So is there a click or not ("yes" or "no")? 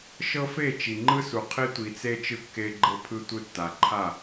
yes